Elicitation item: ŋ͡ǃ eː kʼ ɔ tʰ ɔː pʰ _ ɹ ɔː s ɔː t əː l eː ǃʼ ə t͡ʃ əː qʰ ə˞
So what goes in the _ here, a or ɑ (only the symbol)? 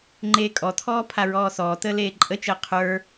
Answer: a